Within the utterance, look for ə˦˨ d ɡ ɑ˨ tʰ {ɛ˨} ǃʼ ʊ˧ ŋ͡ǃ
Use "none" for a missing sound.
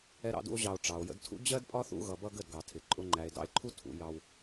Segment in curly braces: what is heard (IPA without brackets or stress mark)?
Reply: ɪ˨